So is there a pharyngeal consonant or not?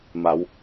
no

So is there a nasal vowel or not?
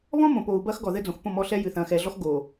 yes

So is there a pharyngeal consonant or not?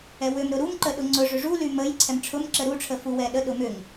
no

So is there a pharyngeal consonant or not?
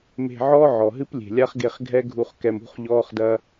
yes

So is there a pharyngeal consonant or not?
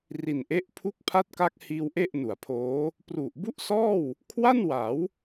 no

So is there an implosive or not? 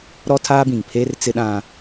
yes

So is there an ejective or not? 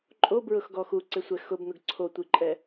yes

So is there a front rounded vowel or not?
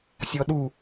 no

